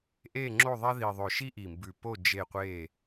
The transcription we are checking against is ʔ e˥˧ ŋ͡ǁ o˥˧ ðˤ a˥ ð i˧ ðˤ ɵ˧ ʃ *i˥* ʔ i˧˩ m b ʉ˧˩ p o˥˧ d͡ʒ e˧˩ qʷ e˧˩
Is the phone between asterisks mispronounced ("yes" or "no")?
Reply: no